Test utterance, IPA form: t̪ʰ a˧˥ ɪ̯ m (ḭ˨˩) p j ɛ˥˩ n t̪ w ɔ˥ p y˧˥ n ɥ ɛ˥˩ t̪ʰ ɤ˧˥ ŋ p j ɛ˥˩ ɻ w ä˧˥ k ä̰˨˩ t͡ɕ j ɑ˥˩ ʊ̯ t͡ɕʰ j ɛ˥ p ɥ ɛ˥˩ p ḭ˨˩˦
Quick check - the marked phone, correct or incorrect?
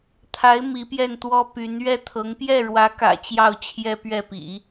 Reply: incorrect